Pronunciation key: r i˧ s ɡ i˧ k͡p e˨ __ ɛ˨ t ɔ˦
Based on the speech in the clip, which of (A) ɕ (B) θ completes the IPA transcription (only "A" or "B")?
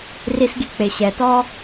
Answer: A